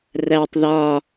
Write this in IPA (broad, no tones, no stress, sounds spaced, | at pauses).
r æ tˤ ð ɒ